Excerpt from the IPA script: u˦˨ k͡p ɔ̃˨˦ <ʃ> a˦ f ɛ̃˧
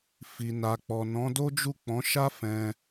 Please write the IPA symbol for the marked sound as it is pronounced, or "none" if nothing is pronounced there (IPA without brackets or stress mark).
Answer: ʃ